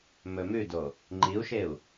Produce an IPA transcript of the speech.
mɵmʉdo | ŋ͡ǃiu̯ʃeu̯

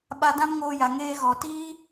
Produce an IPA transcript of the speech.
ɓa˧dã˦mŋoː˧ja˨ ŋeː˧ɣɔ˨tiː˦

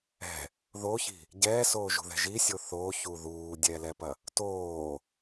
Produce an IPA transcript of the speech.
ɛ̤ | ðoçi̤ | ɟɛːsoːʒṳðɛ̤ ʒisʲo θoːçu ðuːdʲɛːlɛpɐ | toː

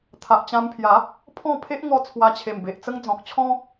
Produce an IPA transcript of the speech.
t̪ʰa˨ʔt͡ɕã˧mpʰja˨˦ | pʰɔ̃˥˧ pʰe˦ʔŋɔ˧ t͡sʰwa˧t͡ɕʰe˨˩mbe˨ʔt͡sə˦ŋ d͡zɔ̃˨k̚t͡ɕʰɔ̃˦

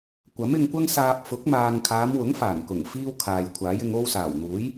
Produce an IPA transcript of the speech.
kʷɐ˨˥mɪ˧ŋkʷɐ˥ŋsaː˧p̚ fʊ˨˥k̚maː˨ŋkʰaː˨˧mwʊ˨˥ŋ faː˨˩nkʊ˨˩ŋ fiː˥wkʰaː˨j kʷʰaː˨˥jɪ˨˧ŋo˥w saː˨˩wn̪uː˨˥j

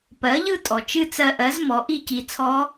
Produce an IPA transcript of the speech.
pɜ˩˥ʎɯ˥˧tʼɔ˩ t͡ʃɨ˥˧t͡sɜ˧ʔɜ˩˥z mɔ˩˥ʔi˥˧ci˧ t͡sʰɔ˦˥

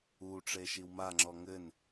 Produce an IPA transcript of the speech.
uʈ͡ʂe ʃiwmaŋ͡ǁɔ ŋɘn

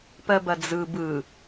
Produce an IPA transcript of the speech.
pɜbɐd͡zɯ bɯ

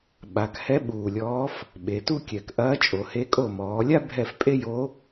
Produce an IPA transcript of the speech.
ɓa˩˧khɛ˧˥ ɓuː˨˩lʲɔː˧˥f | ɓe˩˧tu˥kʲɛ˨˩k ʔɐː˧˥t͡ʃʼo˩˧he˧˥kʼo˦˨ mɔː˩˧lʲa˥ bʱɛ˦˨f pʼe˥jo˧˥

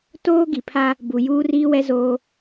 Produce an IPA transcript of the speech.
toː˦ɡi˨pʰa˦ | bu˨juː˦riː˦wɛ˦ zo˦

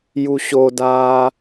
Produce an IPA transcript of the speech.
juɕodaː

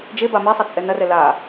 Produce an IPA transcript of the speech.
d͡ʒeba misˤit͡sʼɛ nɐrɛ la

